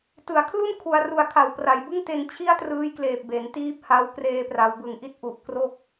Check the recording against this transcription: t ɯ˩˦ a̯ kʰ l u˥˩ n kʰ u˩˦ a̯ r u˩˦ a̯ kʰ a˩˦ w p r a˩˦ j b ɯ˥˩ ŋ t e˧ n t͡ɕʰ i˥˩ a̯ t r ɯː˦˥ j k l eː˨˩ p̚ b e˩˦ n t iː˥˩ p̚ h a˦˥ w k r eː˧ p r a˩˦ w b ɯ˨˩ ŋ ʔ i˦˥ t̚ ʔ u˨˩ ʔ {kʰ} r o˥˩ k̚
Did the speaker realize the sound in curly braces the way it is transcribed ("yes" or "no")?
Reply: no